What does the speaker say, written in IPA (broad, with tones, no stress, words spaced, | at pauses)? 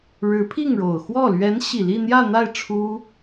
ɻɻ̩˧˥pʰi˥˩ŋɻo˨˩ʊ̯ xwɔ˥˩ lɥɛ˧˥nɕi˨˩ li˥˧n̪jä˥˧n̪a˥˩ɪ̯ ʈ͡ʂʰu˥